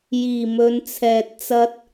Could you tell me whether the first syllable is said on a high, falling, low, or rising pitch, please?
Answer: low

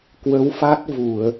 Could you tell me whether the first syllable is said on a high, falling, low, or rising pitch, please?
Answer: rising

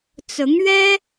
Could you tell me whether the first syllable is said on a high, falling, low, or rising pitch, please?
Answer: rising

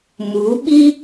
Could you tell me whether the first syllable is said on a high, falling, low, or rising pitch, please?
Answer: rising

